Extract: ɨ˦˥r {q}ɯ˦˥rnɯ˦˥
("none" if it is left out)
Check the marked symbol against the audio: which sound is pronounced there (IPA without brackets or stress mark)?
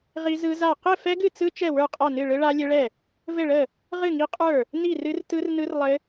t